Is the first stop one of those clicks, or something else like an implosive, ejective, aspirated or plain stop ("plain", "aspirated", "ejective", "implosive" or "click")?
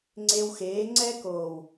click